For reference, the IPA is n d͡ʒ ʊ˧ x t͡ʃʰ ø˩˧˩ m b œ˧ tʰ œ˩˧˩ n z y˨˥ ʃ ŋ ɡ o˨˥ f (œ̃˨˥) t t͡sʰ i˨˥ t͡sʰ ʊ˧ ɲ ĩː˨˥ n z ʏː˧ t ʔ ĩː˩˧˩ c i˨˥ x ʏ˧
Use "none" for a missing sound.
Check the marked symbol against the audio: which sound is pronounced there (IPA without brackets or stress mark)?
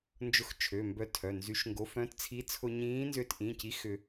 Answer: œ̃˨˥